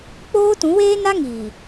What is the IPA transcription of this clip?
k͡p oː˦ t ũ˨˦ w eː˦ n a˦ ŋ iː˨

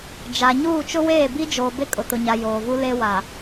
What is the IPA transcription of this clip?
d͡ʒ a˨ ɲ uː˦˨ t͡ʃ ʊ˦ w eː˦˨ b i˦ d͡ʒ oː˨ b e˦ kʼ ʊ˨ t ʊ˨ ɲ a˨ j oː˨ v u˦ l e˦ w a˨

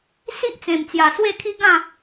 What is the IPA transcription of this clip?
s i˦ ʔ t͡s ẽ˨˩ m t͡s j a˨˩ s w e˥˧ kʰ i˦ ɡ ã˥˧

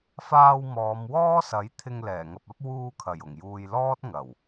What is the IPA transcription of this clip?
f aː˧ w m ɔː˨˧ m w ɔː˥ s ɐ˨˥ j t̪ʰ ɪ˧ ŋ l ɛː˨˩ ŋ ɐ˨ p̚ ɐ˥ p̚ w uː˧ kʰ ɐ˨˩ j ʊ˨˩ ŋ j uː˨ j l ɔː˥ t̚ ŋ ɐ˨˩ w

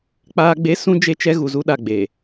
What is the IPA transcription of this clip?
k͡p aː˦ ɡ͡b e˦ s ũ˦ d͡ʒ e˦ t͡ʃ ɛ˦ ɣ u˨ z u˦ ɗ a˨ ɡ͡b eː˨

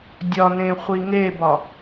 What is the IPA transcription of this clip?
dʲ ɒ n ẽ χʷ i ŋ e b ɒ

